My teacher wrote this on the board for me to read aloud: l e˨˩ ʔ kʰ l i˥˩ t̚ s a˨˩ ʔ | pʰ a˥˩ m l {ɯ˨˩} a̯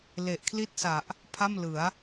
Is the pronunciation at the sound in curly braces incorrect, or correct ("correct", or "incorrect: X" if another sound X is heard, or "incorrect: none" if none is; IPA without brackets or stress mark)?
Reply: incorrect: ɯ˩˦